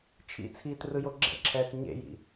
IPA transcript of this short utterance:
t͡ʃʰḭt͡sʰiːt rɯjoɡ͡ǁɛ̰ǁʰɛːt ɲḛjḭ

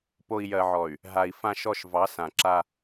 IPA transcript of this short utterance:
po˨i̯jɜ˨ʕɔ˨y̯ | ɦa˨i̯ fã˨ʃɔ˨ʃ vɑ˨˦sã˨ǁa˦

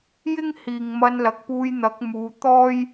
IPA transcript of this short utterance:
jɪ˥ŋhiː˨ŋ mɐ˧nlɐ˨k̚ puː˧jn̪ɐ˨˥k̚muː˨˧ t̪ɔː˥j

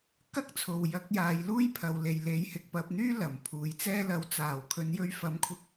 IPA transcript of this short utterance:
kɐ˥k̚t͡sʰo˨w jɐ˨˥k̚jaː˨˧jluː˥j pʰɐ˨wle˨j le˨˥jhɪ˨k̚ pɐ˧p̚n̪yː˥ lɐ˨˩mpʰuː˨jt͡sɛː˥ lɐ˨˥wt͡saː˨˩w kʰɵ˨˧njɵ˧ɥfɐ˨˥m kʷʰɪ˥k̚

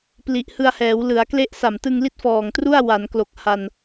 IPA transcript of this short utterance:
pli˨˩ʔhɯ˧a̯hɛː˩˦w lɯ˩˦a̯kle˦˥ʔ sa˨˩mtɯ˧ŋli˦˥t̚ fɔː˨˩ŋtru˥˩a̯ wa˩˦nklo˨˩k̚ ha˧n

